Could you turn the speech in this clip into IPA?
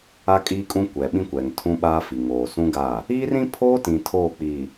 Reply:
a˦ kʼ iː˦ kʼ ũ˦ kʷ ɛ˨ ɓ ĩ˦ kʷ ɛ˨ ŋ tʰ ũ˦ ɓ aː˦ f i˨ ŋ oː˨ s ũ˦ ɡ a˦˨ | iː˦ r ĩ˦ pʰ oː˦ t ĩ˨ tʰ oː˦˨ k͡p i˨

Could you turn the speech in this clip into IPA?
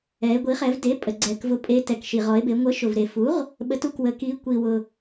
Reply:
ɛ˩˧ e̯ ɡʷ i˩˥ χ ɛ˩˧ v d e˩˥ pʼ ə˩ ɡ͡ǀ ɛ˩ k v ʊ˩˥ pʼ e˩˧ t ɛ˩ k ʃ i˩ ʁ ɔ˩˧ e̯ b e˩˧ ŋʷ ə˩˥ ʃ ʊ˩ v ɾ e˩ f u˩˥ ʁ | ɓ ə˩˧ t u˩ k w ə˩ k i˩˧ kʷ i˩ w ʊ˩

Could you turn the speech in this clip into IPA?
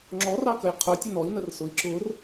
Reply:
ŋ͡ǁ ɔ r ɑ k ə j qʰ ʊ tʲ ə n ɔ i̯ n ə r s ʊ i̯ ǁ ʊ r

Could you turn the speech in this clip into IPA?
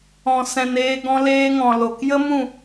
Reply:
ɔ̃˨ s ɛ̃˨ n eː˧ ɡ ɔ̃˧ l eː˧ ŋ ɔ̃˨ l o˨ k j ə˦ m ũ˦˨

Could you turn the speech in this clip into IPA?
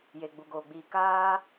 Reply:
j e˨ ɡ͡b u˨ ɡ oː˨ ɡ͡b iː˨ k aː˧

